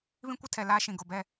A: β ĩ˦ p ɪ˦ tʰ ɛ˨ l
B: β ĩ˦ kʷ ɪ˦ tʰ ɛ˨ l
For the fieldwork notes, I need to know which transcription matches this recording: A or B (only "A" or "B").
B